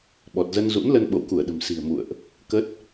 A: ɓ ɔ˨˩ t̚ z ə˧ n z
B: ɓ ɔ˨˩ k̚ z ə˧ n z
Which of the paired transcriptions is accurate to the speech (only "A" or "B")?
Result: A